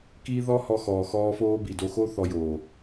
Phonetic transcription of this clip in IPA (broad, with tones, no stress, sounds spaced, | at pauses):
k iː˦ ð ɔ˦ h ɔ˧ x ɔː˨ x ɔː˦ f oː˦ b i˨ d o˧ x o˦ θ ɔ˧ j oː˨